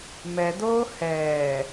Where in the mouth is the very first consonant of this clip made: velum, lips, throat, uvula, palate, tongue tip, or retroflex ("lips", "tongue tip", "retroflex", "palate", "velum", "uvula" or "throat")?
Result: lips